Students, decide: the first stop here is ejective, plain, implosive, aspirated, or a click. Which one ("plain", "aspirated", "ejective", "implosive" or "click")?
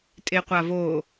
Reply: ejective